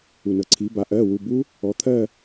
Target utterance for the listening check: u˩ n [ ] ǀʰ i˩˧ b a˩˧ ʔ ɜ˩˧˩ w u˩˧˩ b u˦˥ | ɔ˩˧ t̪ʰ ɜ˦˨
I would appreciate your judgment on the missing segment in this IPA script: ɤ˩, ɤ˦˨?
ɤ˩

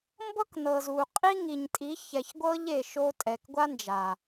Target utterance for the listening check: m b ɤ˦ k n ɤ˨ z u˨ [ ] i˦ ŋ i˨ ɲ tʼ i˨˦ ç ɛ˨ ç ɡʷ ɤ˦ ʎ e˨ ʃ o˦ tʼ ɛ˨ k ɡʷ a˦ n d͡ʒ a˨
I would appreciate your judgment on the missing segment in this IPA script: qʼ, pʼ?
qʼ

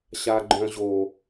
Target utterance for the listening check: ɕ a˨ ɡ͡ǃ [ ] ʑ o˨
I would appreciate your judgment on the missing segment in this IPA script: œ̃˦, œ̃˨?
œ̃˨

